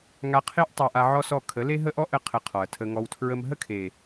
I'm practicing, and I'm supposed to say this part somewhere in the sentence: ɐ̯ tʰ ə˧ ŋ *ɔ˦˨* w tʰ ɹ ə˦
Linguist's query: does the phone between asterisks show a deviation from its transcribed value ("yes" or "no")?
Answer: yes